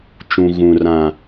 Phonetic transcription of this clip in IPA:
t͡ʃũ˨ɣũ˨ rã˨

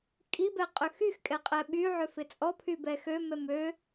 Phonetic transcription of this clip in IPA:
kʼibɛqʼʏ xyxkʼɛqʼɛ ɓyʕʏfɪ t͡sʼɔpʰybɛ xømɛm ø

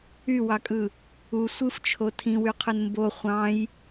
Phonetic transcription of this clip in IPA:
ywɑkʼɯ | u sʷɯft͡ʃʰo tʰĩwyqʰɯn mbo χʷɑ̃j

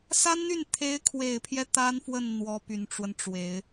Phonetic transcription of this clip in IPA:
sa˥nn̪y˥˩n t̪ʰe˧˥ɪ̯kʰwe˨˩ɪ̯pʰjɛ˦ t̪a˥nfwə˥˩n n̪wɔ˧˥ py˨˩nʈ͡ʂwə˦nʈ͡ʂwe˨˩˦ɪ̯

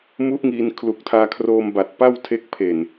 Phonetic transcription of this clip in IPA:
mu˦˥ʔŋiː˧n kʰlu˨˩k̚tʰaː˧kʰroː˧mba˨˩t̚ pa˥˩wtʰe˦˥k̚ pʰe˨˩n

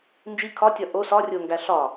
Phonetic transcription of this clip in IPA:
nd͡ʒi kʰɒ tʲɒʔo sɒ rʲoŋɡæɬɒ

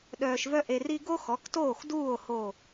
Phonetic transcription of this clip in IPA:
ɗœː˧ʃvœ˥ ʔe˧ri˥ ɡo˥xɔ˩˥ktoː˥˩xduː˥˩o̯ ho˥˩

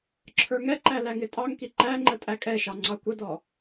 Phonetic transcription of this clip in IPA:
ǁʰə˞ŋɛǃæ læŋɪtʼɑŋki ǃæ ŋ͡ǃətʼækʼɛʃɑ ŋ͡ǀɑkʷədɔ

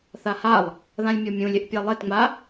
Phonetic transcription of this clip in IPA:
θahalˠ | ðãlʲmʲɔmʲũlʲ ɪʔpʲalˠetŋ͡ma

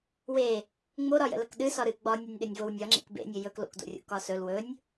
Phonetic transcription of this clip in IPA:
we | ŋ͡moɾɒjə̰lək ɗɨ sɒɾɨ ɡ͡bɒnʲonʲɗɘnʲvow nʲɒ ŋ͡ǁḛkbḛnʲɵ jɵk lo̰kdo̰rʲo̰ kɒsɵl wɵnʲ

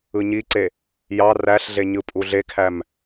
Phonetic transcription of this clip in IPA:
ɯɲiǀe | jɑ ræɬɮe ɲɯpʼuɮekʰæm

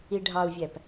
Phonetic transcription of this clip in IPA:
iɖʱɑu̯vʲæp

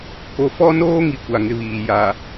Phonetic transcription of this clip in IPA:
ko˨fɔ˦noː˦ ŋi˦ kʷa˨ ŋɪ˦βiː˨ ja˨

